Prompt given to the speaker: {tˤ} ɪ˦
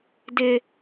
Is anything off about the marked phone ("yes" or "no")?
yes